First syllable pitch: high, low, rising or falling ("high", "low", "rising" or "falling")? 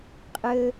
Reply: low